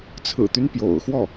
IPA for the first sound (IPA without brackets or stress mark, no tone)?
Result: t͡sʰ